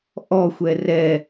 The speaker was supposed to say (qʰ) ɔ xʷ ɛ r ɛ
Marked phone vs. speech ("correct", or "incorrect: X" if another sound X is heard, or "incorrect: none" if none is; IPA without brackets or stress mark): incorrect: ʔ